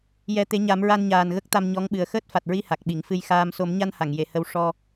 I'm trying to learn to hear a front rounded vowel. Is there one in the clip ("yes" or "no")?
no